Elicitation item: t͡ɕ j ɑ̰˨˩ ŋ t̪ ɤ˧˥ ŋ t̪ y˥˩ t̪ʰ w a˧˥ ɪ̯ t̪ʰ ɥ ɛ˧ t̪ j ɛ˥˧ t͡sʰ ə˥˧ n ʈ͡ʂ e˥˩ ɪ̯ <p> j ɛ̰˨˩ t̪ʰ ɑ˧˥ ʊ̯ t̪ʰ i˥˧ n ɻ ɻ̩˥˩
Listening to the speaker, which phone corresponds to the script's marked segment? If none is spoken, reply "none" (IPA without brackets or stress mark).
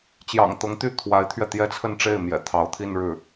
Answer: m